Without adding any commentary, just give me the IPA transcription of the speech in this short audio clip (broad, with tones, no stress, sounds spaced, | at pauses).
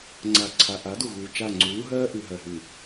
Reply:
ŋ͡ǀ a˨ ǀʰ a˨ ʔ a˨˦ d u˨ ɣ uː˨ t͡ʃ a˦˨ ŋ͡ǀ uː˨˦ ɦ ɜː˦ ʔ ʉ˨ ɦ ɜ˨ ɦ ʉː˨